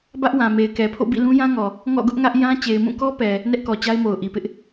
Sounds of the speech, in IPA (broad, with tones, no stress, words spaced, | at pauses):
bä˦ʔwã˨ me˨ɪ̯kɛ˨pʰo̰˦˨ bḭ˦˨lũ˦jã˦ŋɔ˨ | ŋɔ̰˦˨ɡʊ˦ʔŋä˦ʔ jã˦ t͡ɕe˨ɪ̯mũ˦˨kɔ˦pɛ˨ | nɛ˦ʔkɔ˨t͡ɕa˦ɪ̯mo˨ʊ̯ ʔi˨pɪ˦ʔ